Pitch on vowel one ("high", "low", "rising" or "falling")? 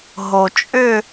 low